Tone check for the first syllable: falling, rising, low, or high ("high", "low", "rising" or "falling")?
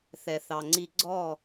low